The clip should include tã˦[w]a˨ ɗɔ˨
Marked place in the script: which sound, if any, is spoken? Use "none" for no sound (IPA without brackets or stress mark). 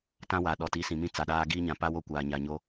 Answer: w